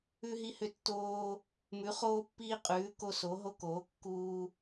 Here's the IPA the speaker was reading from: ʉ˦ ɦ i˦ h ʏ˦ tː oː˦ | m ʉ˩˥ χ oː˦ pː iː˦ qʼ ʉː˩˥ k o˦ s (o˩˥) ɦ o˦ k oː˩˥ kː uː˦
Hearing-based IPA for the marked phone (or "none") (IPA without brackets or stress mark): o˩˥